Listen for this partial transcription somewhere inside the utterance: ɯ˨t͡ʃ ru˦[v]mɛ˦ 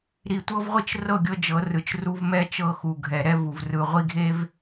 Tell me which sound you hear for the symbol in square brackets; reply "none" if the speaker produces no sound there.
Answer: v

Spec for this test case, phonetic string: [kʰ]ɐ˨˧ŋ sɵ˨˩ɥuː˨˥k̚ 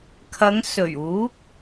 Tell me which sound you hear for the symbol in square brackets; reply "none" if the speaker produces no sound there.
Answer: kʰ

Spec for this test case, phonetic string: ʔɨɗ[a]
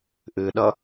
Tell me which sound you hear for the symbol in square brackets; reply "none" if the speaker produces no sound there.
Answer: ʌ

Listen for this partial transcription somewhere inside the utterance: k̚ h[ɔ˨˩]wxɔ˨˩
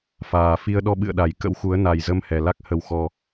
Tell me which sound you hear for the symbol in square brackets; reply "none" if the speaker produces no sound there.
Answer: ə˨˩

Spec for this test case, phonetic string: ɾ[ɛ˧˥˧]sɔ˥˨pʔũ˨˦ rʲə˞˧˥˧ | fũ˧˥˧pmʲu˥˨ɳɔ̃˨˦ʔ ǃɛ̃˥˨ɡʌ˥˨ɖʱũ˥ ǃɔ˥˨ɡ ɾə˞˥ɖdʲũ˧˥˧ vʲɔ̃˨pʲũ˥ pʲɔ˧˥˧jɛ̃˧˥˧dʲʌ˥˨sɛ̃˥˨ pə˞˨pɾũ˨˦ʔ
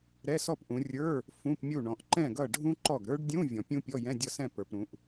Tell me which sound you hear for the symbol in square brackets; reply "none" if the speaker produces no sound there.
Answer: ɛ˧˥˧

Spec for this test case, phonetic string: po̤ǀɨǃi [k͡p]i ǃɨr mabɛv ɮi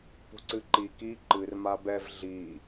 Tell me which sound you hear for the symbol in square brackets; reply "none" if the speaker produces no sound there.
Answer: k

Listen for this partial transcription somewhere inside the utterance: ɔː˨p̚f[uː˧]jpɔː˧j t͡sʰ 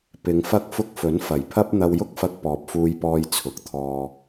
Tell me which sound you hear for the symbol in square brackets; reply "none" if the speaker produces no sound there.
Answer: uː˧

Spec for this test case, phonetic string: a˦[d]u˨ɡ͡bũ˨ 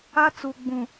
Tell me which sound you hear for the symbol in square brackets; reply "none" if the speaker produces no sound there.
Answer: t͡s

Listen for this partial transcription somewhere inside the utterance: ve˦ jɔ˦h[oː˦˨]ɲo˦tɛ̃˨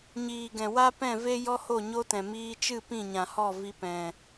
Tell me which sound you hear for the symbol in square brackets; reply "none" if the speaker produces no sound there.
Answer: o˦˨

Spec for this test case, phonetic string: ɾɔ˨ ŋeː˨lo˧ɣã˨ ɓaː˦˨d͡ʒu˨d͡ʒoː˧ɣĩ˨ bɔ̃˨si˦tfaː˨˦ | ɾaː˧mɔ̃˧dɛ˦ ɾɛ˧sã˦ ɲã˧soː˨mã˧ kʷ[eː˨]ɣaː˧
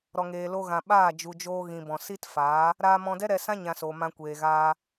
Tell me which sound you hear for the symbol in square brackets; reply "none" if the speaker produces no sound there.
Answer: eː˨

